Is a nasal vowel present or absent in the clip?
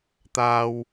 absent